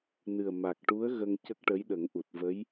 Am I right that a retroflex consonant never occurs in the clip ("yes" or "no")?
no